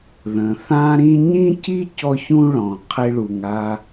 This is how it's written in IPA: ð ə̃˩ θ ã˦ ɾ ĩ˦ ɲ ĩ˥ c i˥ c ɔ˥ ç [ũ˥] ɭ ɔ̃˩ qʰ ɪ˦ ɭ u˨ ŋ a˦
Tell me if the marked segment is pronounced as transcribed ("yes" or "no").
yes